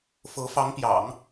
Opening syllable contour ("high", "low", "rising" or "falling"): rising